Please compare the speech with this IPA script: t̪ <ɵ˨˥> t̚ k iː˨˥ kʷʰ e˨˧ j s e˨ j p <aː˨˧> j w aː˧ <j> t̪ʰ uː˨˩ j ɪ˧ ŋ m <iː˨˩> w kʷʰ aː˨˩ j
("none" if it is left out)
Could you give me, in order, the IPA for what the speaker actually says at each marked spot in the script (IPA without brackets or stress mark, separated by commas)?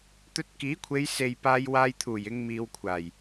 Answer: ɵ˧, aː˧, j, iː˧